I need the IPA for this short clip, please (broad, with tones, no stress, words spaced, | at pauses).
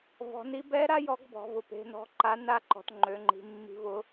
vɔ̤˩˧ni˧˥ bɛ˧˥ɾa˧˥ jɔ˧˥ɡbɔ̤˩˧vʊ˩˧ pe̤˩˧nɔ̤˧˥ǃa˧˥ na˧˥ǃɔ̤˩˧t ŋ͡ǃø˩˧ŋ͡ǃi̤˩˧mːi̤˧˥vʊ˧˥